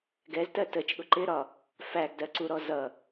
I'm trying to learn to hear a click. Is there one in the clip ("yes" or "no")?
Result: yes